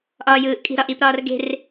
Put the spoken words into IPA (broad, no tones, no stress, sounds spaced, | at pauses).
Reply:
ʔ ɒː j ɯː ʔ kʼ i̤ ɾ ɒ ʔ i p ɾ ɒː r ɡ e̤ r